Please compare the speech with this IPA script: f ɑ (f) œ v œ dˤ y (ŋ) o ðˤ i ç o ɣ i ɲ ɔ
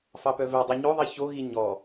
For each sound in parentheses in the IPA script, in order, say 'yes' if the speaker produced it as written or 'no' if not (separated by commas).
no, no